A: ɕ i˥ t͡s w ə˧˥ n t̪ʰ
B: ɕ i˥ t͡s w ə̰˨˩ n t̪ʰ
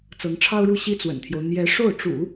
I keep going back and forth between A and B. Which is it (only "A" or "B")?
B